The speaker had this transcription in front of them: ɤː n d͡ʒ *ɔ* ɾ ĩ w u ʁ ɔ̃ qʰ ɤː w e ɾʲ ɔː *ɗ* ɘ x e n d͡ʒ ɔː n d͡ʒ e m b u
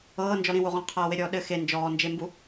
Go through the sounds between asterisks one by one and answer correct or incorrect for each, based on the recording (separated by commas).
correct, correct